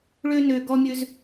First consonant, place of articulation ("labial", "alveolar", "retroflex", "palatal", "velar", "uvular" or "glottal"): retroflex